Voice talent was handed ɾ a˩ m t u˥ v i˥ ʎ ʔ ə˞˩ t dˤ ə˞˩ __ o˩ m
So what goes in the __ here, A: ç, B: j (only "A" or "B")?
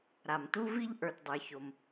A